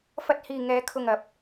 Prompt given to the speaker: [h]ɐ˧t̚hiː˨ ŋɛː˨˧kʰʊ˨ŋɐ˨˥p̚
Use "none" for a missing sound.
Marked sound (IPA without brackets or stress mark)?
f